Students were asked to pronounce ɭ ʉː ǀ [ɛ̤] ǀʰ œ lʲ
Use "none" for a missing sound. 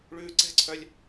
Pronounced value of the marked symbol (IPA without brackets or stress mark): ɛ̤